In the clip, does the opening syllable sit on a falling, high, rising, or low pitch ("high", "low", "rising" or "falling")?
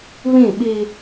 falling